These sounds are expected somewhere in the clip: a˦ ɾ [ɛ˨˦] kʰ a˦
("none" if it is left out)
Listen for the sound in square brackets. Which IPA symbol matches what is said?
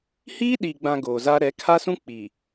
ɛ˨˦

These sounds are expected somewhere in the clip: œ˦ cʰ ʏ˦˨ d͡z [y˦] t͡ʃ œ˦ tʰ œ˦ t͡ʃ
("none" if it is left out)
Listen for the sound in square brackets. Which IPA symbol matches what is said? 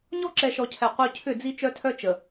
i˦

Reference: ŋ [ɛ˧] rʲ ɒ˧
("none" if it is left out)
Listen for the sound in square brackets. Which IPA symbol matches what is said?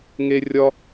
e˧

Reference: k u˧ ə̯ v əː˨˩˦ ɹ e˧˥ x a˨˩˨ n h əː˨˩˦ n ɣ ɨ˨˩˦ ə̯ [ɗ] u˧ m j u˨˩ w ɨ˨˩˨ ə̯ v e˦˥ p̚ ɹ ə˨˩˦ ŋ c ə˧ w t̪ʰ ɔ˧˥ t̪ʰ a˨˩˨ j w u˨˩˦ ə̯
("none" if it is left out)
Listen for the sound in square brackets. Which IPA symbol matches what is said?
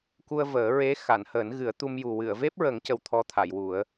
t̪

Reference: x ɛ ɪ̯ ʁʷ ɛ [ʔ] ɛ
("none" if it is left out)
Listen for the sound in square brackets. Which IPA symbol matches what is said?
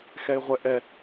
ʔ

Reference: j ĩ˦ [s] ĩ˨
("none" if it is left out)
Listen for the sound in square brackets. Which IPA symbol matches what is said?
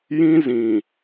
z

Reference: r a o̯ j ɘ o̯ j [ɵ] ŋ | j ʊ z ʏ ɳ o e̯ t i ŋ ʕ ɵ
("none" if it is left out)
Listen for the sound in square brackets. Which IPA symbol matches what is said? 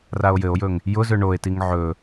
ɵ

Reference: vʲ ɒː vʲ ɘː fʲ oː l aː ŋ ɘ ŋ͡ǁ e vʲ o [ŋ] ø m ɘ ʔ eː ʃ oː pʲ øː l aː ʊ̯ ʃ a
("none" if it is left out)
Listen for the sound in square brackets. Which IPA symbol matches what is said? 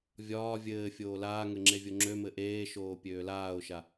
ŋ͡ǁ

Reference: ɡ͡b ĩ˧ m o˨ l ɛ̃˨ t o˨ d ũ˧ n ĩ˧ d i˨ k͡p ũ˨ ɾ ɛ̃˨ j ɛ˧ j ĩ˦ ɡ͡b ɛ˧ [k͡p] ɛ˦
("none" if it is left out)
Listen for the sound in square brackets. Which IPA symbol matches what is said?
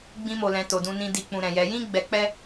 k͡p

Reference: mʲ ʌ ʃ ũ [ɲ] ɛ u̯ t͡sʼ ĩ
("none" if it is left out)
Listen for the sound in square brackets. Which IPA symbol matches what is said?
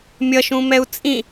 m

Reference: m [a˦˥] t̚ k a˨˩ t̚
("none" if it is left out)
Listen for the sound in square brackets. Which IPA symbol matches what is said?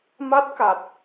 a˦˥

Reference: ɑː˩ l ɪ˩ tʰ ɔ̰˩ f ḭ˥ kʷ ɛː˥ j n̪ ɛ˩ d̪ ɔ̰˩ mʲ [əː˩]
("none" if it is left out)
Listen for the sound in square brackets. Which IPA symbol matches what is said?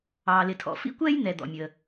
əː˩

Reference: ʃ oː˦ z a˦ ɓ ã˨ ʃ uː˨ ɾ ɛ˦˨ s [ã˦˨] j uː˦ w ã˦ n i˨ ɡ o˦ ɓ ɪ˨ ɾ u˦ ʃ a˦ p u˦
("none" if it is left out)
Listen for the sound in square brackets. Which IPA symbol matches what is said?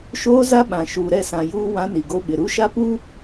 ã˨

